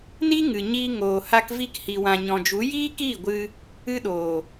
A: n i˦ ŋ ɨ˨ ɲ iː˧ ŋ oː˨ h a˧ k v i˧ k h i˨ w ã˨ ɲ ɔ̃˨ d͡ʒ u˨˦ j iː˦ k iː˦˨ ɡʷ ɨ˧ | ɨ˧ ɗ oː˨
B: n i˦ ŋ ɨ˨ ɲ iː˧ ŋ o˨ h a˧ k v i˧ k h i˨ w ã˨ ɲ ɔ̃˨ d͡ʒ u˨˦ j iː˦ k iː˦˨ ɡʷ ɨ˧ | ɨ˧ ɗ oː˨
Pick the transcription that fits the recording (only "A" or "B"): A